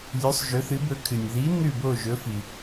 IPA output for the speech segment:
lʲʉ˨˥sˤʒɵ˨˥θɨ˨˥bɵ˨˥ kʰɨ˩nʲði˨˥ nʉ˥˨bo˥˨ʒɵ˨˥fi˩

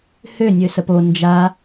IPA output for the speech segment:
hønʲø səpo nd͡ʒa

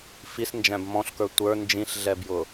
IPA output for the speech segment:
fisnd͡ʒæ̃b mɔ̃ɬkə˞ tʷə˞ nd͡ʒĩɬɮɛbjʊ

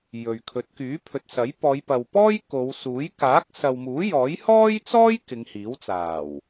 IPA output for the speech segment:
jɵ˨ɥkʰɵ˨˥t̚ kyː˨˥pʰɵ˨t̚sɐ˨˥j pɔː˨˧jpɐ˨wpɔː˥j ko˨˧w suː˨˥j kaː˨˥k̚sɐ˨wmuː˨˥ jɔː˨˥jhɔː˥jt͡sɔː˥j kɪ˨˧ŋhiː˨˥wt͡saː˨˩w

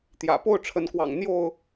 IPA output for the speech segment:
t̪jä̰˨˩ po˥˨ʊ̯ʈ͡ʂʰə˨˦nkwɑ̰˨˩ŋ n̪jo˥˨ʊ̯

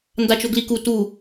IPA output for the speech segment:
ndat͡ʃoɡliku tu

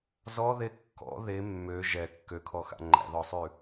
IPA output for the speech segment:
zɔðe kːɔ̰ ðe mːø ʒɛ kːøkʰɔxa̰ ŋ͡ǃæ̰ðɔsˤʉ

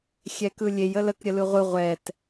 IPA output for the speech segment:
xʲɛkɯlʲej ələk ɾʲəlɯʁʷɯ ʁʷɛt

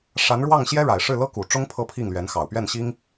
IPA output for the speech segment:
ʂa˧˥n ɻwɑ˥˩ŋɕjɛ˥ɻa˨˩ɪ̯ʂɻ̩˥˩ lɤ˥ku˨˩ʈ͡ʂʊ˥ŋ pʰɤ˥˧pʰi˥˩ŋlɥɛ˧˥nxɑ˨˩ʊ̯ pɥɛ˥˩nɕi˥ŋ

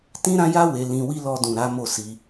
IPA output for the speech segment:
tĩ˦ɾã˦ja˦ we˧lĩ˧wi˦ lɔ˧dũ˨ ɾa˨˦ mo˦˨si˧

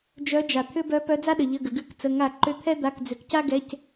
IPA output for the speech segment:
d͡ʒœ˨˦d͡ʒa˩ t̪ʰʏ˦bœ˨˦ pœ˨˦d͡za˦ɗə˩ ʎə˩˧˩ ɡə˩ɡʉ˧˩˧kt͡sə˩˧˩ ŋa˧˩˧ǃʏ˨˦ t̪ʰɛ˦ d̪a˩˧˩kd͡zʏ˩kca˦ɡɛ˩˧˩c

